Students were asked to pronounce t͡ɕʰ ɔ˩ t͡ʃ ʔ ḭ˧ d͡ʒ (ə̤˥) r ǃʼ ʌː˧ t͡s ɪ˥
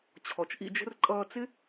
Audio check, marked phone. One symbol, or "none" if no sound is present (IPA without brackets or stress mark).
ə̤˥